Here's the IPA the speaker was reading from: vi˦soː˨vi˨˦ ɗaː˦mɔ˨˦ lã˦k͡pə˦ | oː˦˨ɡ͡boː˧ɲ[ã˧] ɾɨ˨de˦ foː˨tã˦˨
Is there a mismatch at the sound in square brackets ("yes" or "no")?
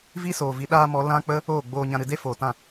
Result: no